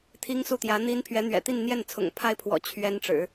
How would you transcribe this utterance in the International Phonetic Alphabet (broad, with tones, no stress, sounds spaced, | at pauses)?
t̪ʰ i˥ ŋ s u˥˩ t̪ j ä˧˥ n̪ i˥ n pʰ ɥ ɛ˧˥ n̪ ɥ ɛ̰˨˩ t̪ i˥˧ n n̪ j ɛ˥˩ n t͡sʰ ʊ̰˨˩ ŋ pʰ a˥ ɪ̯ pʰ w ɔ̰˨˩ t͡ɕʰ ɥ ɛ˥ n ʈ͡ʂ ɻ̩˨˩˦